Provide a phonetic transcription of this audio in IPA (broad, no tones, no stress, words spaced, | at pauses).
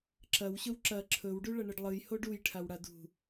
ǁɐwɕɵw ǁɐ ǁʰɵwɖʉɭɐ ɳɨɖlˠɨj hoɖuj ʈʰawɽadṳ